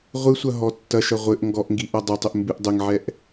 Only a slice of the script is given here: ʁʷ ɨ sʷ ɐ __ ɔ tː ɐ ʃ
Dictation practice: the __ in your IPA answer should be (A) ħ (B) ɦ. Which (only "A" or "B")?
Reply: B